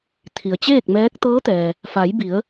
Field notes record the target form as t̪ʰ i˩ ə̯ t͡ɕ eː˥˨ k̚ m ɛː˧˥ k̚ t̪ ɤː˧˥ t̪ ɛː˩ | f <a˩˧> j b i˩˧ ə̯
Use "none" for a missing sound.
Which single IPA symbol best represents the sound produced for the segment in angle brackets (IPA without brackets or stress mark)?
a˩˧